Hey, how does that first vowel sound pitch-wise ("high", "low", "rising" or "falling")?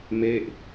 falling